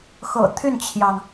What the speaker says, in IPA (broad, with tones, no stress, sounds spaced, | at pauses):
x ɤ̰˨˩ t̪ʰ y˥˩ n t͡ɕʰ j ɑ˩ ŋ